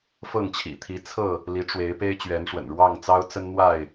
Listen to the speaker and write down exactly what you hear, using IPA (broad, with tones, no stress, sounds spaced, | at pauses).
f ɤ˥˨ ŋ t͡ɕʰ ḭ˨˩ t̪ʰ i˨˦ t͡sʰ ɤ˥˨ | l i˨˦ ʈ͡ʂ w e˨˦ ɪ̯ p e˦ ɪ̯ t͡ɕ ɥ ɛ˨˦ n ʂ w ə̰˨˩ n ɻ w ɑ˥˨ ŋ t͡s ɑ˦ ʊ̯ t͡s ə˦ n n̪ w a˥˨ ɪ̯